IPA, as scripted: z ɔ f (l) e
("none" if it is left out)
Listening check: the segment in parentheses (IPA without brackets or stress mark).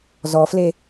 l